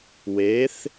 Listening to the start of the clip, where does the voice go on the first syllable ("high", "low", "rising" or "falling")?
rising